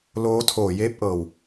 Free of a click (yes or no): yes